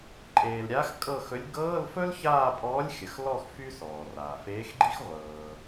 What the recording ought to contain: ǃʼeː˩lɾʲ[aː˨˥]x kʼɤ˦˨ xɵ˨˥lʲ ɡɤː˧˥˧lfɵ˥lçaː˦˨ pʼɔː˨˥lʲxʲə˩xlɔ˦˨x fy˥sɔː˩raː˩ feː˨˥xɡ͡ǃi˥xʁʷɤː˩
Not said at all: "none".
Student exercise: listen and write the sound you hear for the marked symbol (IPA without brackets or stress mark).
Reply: aː˨˥